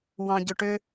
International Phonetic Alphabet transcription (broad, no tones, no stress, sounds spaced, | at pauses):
w ɑ̃ ɟ ʏ ʈ ʏ